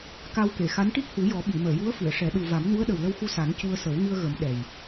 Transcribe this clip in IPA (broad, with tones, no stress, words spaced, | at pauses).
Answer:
ka˧wke˨˩˨xa˧˥n ʈi˦˥k̚hu˨˩˦jɔ˨˩˦ ɓi˨˩˨məː˨˩˨ju˧˥ə̯ fɨ˨˩˨ə̯ʂɛ˨˩˦ ɗu˨˩ va˨˩˦mnu˧˥ə̯ɗə˨˩w lə˧wxu˧sa˨˩˦n cu˧ə̯ sə˨˩˦wŋɨ˧ə̯ɣə˨˩˦m ɗɛ˨˩j